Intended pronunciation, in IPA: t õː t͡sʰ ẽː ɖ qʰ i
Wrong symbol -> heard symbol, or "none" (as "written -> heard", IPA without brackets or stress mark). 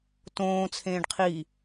none